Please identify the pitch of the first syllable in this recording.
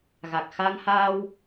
low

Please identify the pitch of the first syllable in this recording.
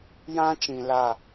high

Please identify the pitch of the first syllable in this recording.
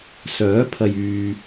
rising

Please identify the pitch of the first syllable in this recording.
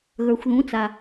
low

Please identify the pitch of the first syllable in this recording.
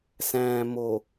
low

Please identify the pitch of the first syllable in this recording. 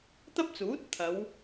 high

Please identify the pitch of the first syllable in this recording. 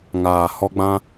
low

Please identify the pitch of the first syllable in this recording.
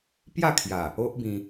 falling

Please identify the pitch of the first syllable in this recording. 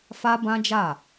high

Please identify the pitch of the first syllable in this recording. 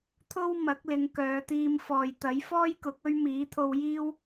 high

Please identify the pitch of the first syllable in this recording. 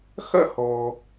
high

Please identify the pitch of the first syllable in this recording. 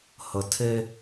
low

